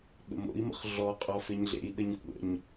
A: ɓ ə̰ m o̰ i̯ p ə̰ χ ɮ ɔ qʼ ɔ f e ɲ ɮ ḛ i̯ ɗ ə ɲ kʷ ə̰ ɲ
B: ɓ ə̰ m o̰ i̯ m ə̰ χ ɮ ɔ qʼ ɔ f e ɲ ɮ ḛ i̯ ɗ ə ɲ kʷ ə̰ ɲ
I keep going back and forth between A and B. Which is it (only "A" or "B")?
B